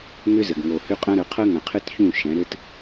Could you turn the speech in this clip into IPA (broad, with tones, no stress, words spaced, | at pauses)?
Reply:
ŋʏ˦zɘ˨ɡ ŋo˨hʏ˦qʼɐ̃˦ɾə˨˦ qʰɐ˦ŋɐ̃˨qʰɘ˦tçũ˦˨ ʃɛ̃˨˦ ɾɘ˦t